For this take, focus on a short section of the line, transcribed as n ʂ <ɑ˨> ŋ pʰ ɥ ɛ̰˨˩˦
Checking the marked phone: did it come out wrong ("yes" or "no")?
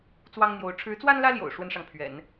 no